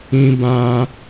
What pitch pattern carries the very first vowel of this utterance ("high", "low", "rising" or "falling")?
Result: high